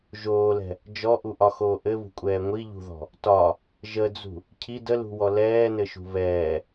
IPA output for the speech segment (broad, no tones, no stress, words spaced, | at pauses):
ʒoːlɛ̤ | d͡ʒɔʔuʔɒxoː ʔɘβṳkʷʼɛː ŋʷiʎṳðɔ̤ | tɒ | ʒəd͡zṳ | cʰi dəlṳwɔ lɛːnɘʃṳ βɛː